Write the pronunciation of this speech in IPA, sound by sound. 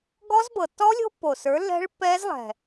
ɡ ɔ˦˥ z b ɤ˨˩ tː ɔ˦˥ lʲ o̤˦˥ pː o˨˩ s ə˞˨˥ lː ɛ̤˦˥ ɭ pː ɛ˦˥ z lˠ ɛ̤˨˩

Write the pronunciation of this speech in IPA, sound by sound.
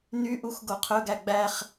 n y ʔ u x ɡ o qʰ ɵ ɡ æ ɡ͡b æ χ

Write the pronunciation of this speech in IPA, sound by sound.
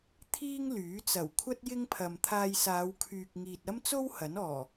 t̪ʰ iː˥ ŋ l yː˨˥ t͡s ɐ˨˩ w kʷʰ ɐ˥ t̚ j ɪ˥ ŋ pʰ ɐ˨ m t̪ʰ aː˧ j s aː˨˧ w kʰ yː˨ k̚ ŋ iː˨ t̚ ɐ˥ m t͡s o˥ w h ɐ˨˥ n ɔː˨˩

